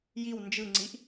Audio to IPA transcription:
j i w n d͡ʒ ɯ ŋ͡ǀ i ʔ

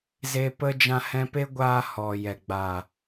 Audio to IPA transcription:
z e˧ p ə˧ d͡ʒ ã˦ h ɛ̃˦ p e˦ ɡʷ aː˧ h ɔ˨ j ɛ˨ ɡ͡b a˨

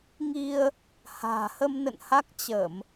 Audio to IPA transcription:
ŋ i˧ ə̯ | h a̤ː˨˩ h ə˧ m n ə̰˧˨ n h a˦˥ k̚ t͡ɕ ə˧˩˨ m

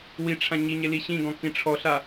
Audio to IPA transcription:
w i ʈ͡ʂʰ ã ɲ i ɲ e l i ɕ ĩ ɡ ɔ̃ k ĩ ʈ͡ʂʰ ɔ ɬ a

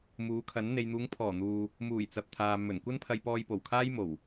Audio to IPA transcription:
m uː˨˥ kʰ ɐ˨˥ n n̪ e˨ j n̪ uː˨˧ ŋ pʰ ɔː˨˩ n̪ uː˨ | m uː˨˩ j t͡s ɐ˨ p̚ t̪ʰ aː˨ m ɵ˨˩ n kʷ ɐ˥ n pʰ ɐ˧ j p ɔː˧ j p o˨˩ w kʰ aː˥ j m o˨˩ w

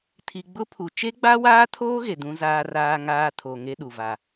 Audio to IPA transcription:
tʰ i˨ ɡ͡b ʊ˦ pʰ u˨ t͡ʃ e˦ ɡ͡b a˦ w aː˦ tʰ oː˦ ɣ e˨ d ũ˦ z aː˦ r aː˦ ŋ aː˦ tʰ o˨ ŋ e˦ ɗ u˨ v a˦

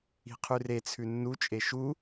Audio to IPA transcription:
i̤ qʰ ʉ r e t͡sʰ ʉ nː u t͡ʃʼ e ʃ u

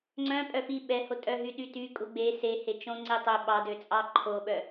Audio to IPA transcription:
ŋ͡ǀ œ̃ pʼ œ f i ɓ ɛ h o tʼ œ ɦ y ɗ y t y kʼ u ɡ͡b e s e h e t͡ʃ õ ŋ͡ǀ e tˤ ɵ ɓ ɑ d ø t͡sʼ ɑ ǃʰ o ɓ œ

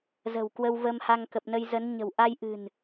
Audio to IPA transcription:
z ə̤˨˩ w k w ə˧ w v ə˧ m h a˧ ŋ k ə˨˩ p̚ n ə˧ j z ə˨˦ n ɲ ə̤˨˩ w ʔ a˧ j ʔ ɨ̤˨˩ n

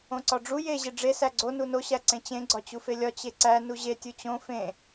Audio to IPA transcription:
õ ǀ ɒ ɖ͡ʐ u j e ʑ e ɖ͡ʐ e s æ ɡ͡ǀ o n u n o ɕ æ ǀ ẽ t͡ɕ ẽ ɡ͡ǀ ɒ t͡ɕ u f e lʲ ɒ t͡ɕ e ǀ æ n u ʑ e tʲ u t͡ɕ õ f ẽ

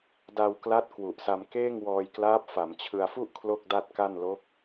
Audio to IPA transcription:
d a˧ w k l a˦˥ t̚ k w u˨˩ ʔ s a˧ m k eː˥˩ ŋ w ɔː˧ j k l aː˦˥ p̚ f a˩˦ m t͡ɕʰ ɯ˧ a̯ f u˥˩ ʔ kʰ l o˥˩ k̚ d a˥˩ t̚ k a˥˩ n l o˦˥ k̚

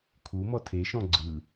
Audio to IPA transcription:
kʰ u m ɔ tʰ e ʃ ɔ̃ ɡ͡ǀ ɯ

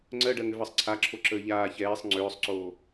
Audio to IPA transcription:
ŋ͡ǀ ɜ ɖ ɜ ŋ ʏ v ɜ sˤ ǀʰ a ǁʰ o ǁ əː ʎ aː ç ɛː sˤ ŋ͡ǀ ʏː sˤ ǀ oː

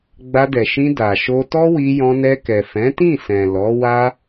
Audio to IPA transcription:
ɡ͡b a˧ d ɛ˨ ʃ ĩ˧ d a˨ ʃ o˧ t ɔ˦ w i˧ j ɔ̃˧ n ɛ˧ k ɛ˨ f ɛ̃˨˦ t ĩ˦˨ s ɛ̃˨ l ɔ˨˦ w a˦

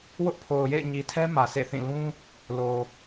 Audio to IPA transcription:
w ʊ˦ ʔ pʰ o˨ ʊ̯ j ḛ˦˨ ɪ̯ ɲ i˨ tʰ ɛ˦ m ä˨ sʰ ḛ˦˨ θ ĩ˦˨ l ũ˦ | l o˨

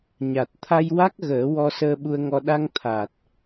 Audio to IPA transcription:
ɲ a˨˩ t̚ t̪ʰ a˧ j w a˦˥ k̚ ɣ əː˨˩˦ w ɔ˧ s əː˧ ɓ u˧ ə̯ ŋ ɔ˧ ɗ a˧ ŋ t̪ʰ a˨˩ t̚

